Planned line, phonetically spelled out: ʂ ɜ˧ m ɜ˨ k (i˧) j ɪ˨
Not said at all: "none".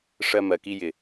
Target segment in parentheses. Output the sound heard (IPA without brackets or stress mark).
i˧